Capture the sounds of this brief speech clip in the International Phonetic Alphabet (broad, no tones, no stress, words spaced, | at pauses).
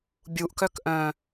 bʲuʔkœk ʔœ̃